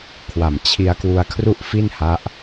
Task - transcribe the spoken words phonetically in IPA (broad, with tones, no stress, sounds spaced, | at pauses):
kʰ w a˨˩ m t͡ɕʰ i˧ a̯ k w u˧ a̯ kʰ r u˥˩ ʔ f i˥˩ n h a˦˥ ʔ